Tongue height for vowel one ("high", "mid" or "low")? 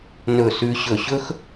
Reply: mid